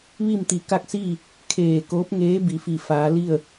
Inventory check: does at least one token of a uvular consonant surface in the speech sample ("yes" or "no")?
no